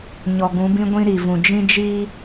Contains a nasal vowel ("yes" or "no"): yes